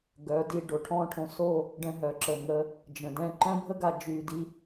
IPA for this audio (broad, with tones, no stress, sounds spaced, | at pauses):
ɡ œ˨˦ d i˧ ɖ o˨ ʈʰ ɔ̃ː˦ ʈʰ õ˧ s o˦˨ | ɖ ɛ̃˧ ɦ œ˨ ǁ ə˨ ŋ ə˧ | d͡ʒ ə̃˨ d ɛ̃˦ ǃ œ̃˦ bʱ ə˦ ɡ a˧ d͡ʒ yː˧ d i˦